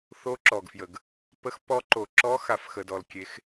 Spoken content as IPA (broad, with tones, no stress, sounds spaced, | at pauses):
θ o˨˦ ǁ ɔ˩ ɡ f j ə˩ ɡ | p ə˨˦ x p ɔ˨˦ ǃ o˩ ǁ ɔ˨˦ x a˩ f x ə˩ d ɔ˩ l kʲ e˨˦ x